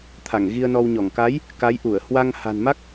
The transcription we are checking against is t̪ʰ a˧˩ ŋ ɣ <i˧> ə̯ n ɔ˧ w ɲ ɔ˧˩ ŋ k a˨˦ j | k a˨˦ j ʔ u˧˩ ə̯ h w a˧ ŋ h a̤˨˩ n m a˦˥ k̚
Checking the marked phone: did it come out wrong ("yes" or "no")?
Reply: no